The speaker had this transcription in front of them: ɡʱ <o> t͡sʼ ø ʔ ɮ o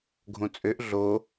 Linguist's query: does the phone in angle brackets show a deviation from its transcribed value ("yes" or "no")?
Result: yes